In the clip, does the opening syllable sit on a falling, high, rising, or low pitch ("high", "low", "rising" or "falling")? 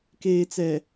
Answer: low